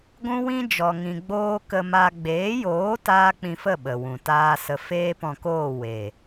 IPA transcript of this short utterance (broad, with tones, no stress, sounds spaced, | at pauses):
ɡʷ ũ˦ w ĩ˦ d͡ʒ ɔ˨ ŋ ĩ˨ ɡ͡b oː˦ k ə˧ m a˧ ɡ͡b eː˨˦ j oː˨˦ t aː˦ k͡p ĩ˧ f ə˦˨ ɓ ə˨ w ũ˨ t aː˦ s ə˧ f eː˦ p ɔ̃˧ k oː˦˨ w e˨